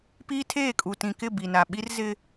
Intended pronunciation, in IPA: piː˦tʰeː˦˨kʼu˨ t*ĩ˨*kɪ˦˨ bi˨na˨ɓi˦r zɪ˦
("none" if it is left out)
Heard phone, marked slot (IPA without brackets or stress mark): ĩ˨